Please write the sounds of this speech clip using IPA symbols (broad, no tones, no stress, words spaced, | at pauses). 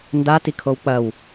ndatikʰow k͡pɐw